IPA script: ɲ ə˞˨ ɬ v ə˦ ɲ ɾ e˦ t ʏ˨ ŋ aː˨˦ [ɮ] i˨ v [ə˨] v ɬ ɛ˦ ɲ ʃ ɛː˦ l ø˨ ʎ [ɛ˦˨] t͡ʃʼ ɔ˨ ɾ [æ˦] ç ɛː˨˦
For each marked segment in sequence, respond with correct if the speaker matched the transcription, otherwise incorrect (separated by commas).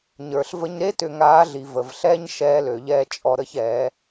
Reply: correct, correct, incorrect, incorrect